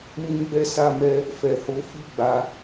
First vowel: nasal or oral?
nasal